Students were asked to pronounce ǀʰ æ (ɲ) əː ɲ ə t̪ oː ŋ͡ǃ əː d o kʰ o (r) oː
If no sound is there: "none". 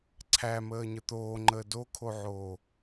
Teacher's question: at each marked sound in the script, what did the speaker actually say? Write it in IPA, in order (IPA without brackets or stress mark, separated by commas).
m, ʕ